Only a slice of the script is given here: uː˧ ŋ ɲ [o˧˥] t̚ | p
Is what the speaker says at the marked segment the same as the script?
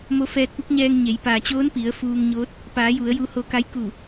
yes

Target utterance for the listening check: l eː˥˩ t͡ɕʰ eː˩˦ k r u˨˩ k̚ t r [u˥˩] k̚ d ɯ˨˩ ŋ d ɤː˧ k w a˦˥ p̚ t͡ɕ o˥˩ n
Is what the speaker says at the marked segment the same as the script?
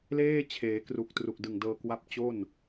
no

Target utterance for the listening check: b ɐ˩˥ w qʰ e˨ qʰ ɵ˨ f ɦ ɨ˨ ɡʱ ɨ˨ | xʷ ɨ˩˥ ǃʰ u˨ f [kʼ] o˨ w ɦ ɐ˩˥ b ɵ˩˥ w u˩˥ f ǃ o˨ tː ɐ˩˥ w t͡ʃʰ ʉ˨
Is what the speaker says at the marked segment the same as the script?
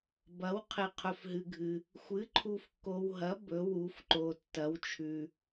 no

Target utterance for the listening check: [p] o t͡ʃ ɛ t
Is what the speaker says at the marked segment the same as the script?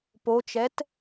yes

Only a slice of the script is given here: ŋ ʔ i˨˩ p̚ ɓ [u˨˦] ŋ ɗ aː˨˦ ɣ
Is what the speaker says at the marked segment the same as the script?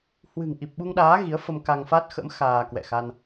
no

